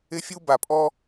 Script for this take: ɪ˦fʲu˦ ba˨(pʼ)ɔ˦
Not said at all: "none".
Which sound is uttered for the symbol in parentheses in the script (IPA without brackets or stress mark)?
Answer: pʼ